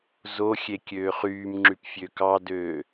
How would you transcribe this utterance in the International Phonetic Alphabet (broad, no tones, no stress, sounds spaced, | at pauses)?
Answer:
z o xʲ e kʲ øː χ yː m ŋ͡ǁ y p fʲ ø k ɑ d øː